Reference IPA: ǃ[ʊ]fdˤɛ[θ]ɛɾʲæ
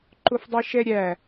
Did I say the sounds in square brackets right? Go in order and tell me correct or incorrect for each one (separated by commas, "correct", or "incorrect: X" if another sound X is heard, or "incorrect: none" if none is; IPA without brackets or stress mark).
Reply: correct, incorrect: ʃ